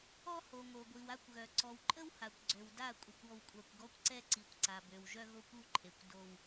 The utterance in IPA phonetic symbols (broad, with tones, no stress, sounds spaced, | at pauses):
ɔ˦ h o˨ ŋ o˨ ɡʷ i˨ w a˦ kʷ ɣ œ˨ ǀ ɔ˨ w ǃʼ ə˦ w h a˨ kʷ ɡ͡ǀ ø˨ w d a˦˨ kʷʼ ə˨ kʷ ɔ˦ w kʷʼ a˦ kʷ ɡ ɔ˦ kʷ ǀ ɛ˦ ǀ i˨ kʷ ǀ a˨ b ø˨ w ʒ œ˦ ɣ o˦ kʷ u˦˨ ǃʰ e˨ kʷ d o˦ w